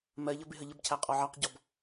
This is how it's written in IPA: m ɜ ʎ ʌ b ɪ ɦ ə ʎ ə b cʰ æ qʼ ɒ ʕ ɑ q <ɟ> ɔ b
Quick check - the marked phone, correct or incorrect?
correct